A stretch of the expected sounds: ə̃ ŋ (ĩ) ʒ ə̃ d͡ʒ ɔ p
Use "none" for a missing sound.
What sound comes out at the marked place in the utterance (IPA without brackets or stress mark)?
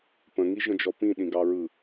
i